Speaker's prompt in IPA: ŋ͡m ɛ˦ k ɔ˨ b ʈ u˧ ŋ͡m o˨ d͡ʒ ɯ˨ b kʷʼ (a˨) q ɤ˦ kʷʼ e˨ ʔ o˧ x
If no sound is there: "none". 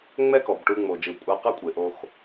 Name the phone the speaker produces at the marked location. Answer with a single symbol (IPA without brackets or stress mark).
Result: a˧